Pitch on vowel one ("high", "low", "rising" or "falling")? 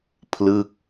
falling